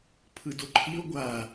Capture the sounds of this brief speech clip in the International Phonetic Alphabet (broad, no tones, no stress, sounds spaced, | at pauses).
pʰ ɯ d o ǃʰ i ʊ̯ ɡʷ a